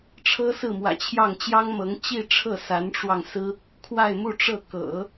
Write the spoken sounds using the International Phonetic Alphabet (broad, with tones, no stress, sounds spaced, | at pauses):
ʈ͡ʂʰ ɤ˥ s ɹ̩˥˩ m w ä̰˨˩ t͡ɕʰ j ɑ˥˩ ŋ t͡ɕ j ɑ˥ ŋ m ɤ˧˥ ŋ t͡ɕ i˥˧ ʈ͡ʂʰ ɤ˥˩ s a˧˥ n ʈ͡ʂ w ɑ˧ ŋ s ɹ̩˥ | kʰ w a˥˧ ɪ̯ m u˥˧ ʈ͡ʂ ɤ˥˩ k ɤ̰˨˩˦